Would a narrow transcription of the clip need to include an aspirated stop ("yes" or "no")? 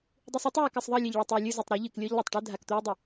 no